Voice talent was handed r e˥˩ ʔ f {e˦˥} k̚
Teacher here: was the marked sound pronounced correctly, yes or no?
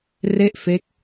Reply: yes